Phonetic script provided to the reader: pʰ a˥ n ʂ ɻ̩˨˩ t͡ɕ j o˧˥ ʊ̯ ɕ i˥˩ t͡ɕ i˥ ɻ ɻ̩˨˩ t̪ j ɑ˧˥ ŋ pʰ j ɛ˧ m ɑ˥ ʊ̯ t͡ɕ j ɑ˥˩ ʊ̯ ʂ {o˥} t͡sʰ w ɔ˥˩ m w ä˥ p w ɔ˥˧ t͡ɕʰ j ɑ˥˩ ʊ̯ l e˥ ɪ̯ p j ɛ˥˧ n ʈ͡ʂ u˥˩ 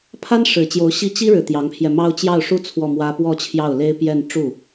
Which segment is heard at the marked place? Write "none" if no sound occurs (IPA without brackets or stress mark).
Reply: u˥